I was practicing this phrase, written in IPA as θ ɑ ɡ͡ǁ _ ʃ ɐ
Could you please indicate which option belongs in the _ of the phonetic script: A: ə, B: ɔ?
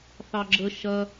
A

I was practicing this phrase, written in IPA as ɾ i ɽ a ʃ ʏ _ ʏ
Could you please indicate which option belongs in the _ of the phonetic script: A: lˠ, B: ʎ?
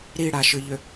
B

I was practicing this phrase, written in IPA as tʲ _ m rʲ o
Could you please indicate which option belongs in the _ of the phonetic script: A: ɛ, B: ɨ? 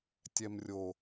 A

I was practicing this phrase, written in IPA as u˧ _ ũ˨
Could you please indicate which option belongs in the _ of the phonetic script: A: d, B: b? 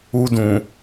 A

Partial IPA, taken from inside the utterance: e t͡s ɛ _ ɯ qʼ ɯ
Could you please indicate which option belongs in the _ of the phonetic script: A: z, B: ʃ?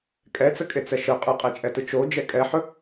B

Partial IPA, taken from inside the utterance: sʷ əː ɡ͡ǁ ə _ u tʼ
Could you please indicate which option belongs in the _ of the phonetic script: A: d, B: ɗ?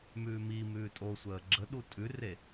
B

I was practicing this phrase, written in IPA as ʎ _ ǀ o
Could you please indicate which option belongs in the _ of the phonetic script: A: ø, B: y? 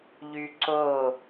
B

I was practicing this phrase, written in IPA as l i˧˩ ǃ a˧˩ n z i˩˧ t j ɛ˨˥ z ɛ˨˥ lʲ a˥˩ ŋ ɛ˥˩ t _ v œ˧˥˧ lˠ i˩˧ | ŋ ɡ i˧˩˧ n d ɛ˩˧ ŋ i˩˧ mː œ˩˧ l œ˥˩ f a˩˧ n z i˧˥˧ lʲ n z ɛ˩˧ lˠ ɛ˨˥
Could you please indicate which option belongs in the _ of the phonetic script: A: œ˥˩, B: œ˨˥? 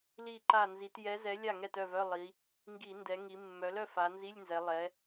A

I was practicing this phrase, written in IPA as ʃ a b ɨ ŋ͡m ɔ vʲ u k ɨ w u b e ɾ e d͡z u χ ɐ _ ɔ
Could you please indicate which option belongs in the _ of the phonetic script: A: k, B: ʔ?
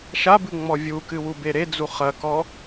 A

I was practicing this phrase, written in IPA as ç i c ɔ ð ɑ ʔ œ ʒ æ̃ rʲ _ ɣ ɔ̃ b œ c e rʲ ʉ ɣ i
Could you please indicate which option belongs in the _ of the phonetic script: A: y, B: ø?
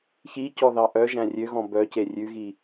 B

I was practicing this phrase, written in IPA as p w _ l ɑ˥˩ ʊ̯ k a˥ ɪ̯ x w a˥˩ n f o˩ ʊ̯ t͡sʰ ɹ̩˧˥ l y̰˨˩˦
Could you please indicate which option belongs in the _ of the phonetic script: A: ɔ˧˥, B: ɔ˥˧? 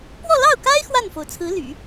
B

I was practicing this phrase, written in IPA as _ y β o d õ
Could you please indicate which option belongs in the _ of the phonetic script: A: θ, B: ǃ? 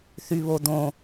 A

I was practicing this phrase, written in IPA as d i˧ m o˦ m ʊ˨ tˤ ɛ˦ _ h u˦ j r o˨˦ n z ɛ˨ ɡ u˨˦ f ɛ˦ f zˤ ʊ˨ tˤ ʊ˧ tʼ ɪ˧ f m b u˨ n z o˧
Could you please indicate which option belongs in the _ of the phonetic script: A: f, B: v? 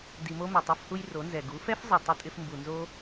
A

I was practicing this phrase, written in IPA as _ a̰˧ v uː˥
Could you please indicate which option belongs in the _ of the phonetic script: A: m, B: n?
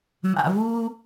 A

